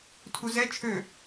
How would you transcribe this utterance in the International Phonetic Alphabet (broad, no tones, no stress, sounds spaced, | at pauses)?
tʰ u z ɛ t͡ʃʰ ø